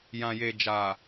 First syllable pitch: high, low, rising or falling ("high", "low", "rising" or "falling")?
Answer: low